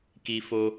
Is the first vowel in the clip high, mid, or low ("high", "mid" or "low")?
high